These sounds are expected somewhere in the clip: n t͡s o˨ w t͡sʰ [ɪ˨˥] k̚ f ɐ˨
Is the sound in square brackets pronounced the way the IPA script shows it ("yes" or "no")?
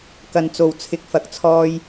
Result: no